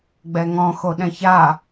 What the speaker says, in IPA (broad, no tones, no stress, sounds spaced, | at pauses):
ɡ͡b ɛ ŋ ɔ̃ x o ɗ ɛ̃ ç a